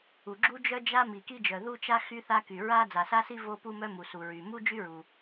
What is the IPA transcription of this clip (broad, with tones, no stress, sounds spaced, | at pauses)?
u˩ ɡ͡ǁ u˥ d͡ʒ œ˥ d͡ʒ a˥ m i˩ k i˥ d͡ʒ œ˩ ð u˥ t͡ʃ a˥ x y˥ θ a˥ k y˩ ɹ a˥ d͡z a˩ s a˥ s i˥ v o˥ p u˥ m œ˥ m u˩ s u˩ ɹ y˩ m u˥ d͡ʒ y˥ ɹ u˩